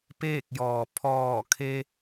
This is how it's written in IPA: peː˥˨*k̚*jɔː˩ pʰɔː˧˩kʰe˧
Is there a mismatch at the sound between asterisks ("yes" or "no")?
no